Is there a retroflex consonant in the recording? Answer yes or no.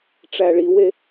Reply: yes